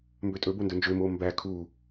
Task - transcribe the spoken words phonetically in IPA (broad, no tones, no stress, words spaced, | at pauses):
mbøtʼɵbo ndɵnd͡ʒømoː mbæ kʰuː